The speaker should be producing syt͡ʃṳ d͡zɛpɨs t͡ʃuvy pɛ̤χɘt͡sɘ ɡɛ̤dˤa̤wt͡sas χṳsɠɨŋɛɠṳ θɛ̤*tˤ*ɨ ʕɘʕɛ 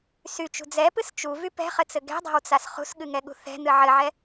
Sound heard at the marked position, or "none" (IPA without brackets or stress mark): n̪